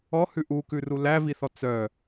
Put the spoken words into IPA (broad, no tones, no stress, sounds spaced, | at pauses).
ɔ h ʉ ʔ u k ʉ r u l æ v i θ ɔ t͡s œ